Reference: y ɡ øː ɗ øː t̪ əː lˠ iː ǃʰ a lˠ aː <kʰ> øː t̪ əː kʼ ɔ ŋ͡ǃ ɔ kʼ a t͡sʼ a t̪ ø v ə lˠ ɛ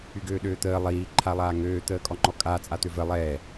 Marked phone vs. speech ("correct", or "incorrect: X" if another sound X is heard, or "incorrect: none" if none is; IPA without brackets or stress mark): incorrect: ŋ